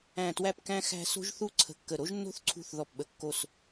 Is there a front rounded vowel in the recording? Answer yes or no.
no